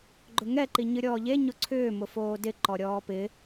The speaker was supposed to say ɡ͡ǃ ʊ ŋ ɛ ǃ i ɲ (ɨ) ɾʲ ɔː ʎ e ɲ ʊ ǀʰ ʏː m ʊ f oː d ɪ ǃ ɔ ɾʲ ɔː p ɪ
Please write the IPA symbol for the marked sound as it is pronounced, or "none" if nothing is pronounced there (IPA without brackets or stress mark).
ɨ